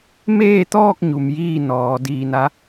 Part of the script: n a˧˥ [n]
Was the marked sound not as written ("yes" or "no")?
yes